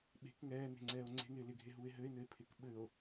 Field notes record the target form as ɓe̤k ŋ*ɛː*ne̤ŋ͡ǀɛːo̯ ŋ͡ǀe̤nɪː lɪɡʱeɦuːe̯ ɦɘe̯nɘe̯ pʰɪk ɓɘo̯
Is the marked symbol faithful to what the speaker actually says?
yes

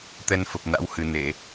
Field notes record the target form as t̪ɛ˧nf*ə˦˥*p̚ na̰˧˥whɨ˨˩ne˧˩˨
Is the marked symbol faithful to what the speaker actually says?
no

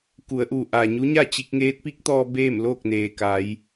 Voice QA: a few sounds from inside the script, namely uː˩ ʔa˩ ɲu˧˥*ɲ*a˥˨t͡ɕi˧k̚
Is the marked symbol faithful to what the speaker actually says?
yes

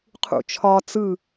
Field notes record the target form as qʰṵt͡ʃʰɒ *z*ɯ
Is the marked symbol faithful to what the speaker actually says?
no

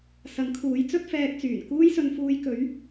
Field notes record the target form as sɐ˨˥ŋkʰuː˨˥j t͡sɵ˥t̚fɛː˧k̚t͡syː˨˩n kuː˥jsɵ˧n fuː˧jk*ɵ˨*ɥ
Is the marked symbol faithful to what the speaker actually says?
no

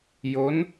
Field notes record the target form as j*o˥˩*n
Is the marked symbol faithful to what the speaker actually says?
no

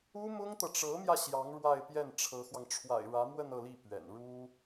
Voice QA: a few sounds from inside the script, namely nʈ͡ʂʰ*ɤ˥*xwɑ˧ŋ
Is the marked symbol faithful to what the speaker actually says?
no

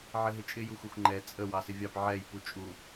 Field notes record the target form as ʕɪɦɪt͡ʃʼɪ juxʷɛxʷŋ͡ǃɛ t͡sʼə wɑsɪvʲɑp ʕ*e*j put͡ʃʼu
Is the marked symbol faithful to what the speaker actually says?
no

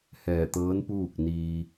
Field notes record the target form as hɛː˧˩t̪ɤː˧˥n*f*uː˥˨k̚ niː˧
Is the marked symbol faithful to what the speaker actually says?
no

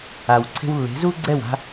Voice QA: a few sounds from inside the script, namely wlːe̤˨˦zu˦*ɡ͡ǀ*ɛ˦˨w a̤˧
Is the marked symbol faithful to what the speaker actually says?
yes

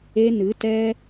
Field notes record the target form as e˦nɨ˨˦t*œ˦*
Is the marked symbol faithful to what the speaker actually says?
no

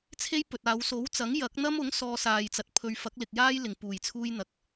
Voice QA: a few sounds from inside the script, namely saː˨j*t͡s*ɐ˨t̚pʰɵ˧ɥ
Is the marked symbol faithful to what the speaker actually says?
yes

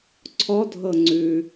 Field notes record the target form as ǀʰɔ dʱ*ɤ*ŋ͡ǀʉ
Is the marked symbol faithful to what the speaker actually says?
yes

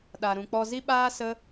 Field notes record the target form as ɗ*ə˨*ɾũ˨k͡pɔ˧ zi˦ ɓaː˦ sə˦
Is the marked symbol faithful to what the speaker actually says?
no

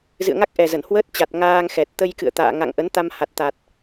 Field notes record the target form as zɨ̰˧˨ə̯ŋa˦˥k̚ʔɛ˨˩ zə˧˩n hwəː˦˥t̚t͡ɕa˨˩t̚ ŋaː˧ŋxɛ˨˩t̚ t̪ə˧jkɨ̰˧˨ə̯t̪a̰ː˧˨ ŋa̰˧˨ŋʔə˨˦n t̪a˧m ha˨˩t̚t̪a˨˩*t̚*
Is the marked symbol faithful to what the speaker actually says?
yes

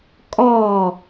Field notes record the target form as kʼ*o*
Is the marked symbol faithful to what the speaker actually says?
no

